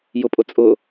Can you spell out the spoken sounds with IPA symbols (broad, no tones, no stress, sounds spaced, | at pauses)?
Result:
j ʊ pʼ ʊ t͡sʼ ʊ